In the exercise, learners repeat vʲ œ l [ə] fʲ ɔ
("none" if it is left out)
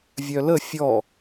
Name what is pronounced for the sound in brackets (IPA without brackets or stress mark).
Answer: ə